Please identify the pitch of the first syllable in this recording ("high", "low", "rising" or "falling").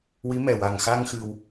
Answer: rising